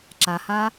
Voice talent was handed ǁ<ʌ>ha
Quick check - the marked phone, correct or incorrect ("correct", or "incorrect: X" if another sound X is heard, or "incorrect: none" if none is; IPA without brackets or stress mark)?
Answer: incorrect: a